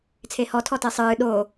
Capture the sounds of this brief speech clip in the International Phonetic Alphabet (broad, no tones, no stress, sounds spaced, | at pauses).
t͡sʰ e h ɔ tʰ ɔ t e sˤ ɨː ɗ o